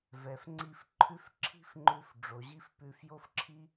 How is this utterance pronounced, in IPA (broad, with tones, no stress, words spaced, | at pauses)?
vɛ˩fŋ͡ǀi˧fǃʰʉ˥f ǁʰi̤˥f ŋ͡ǃʉ˧f ɖ͡ʐo˩ʑi˥fpʉ˧f jo˥fǁʰi˥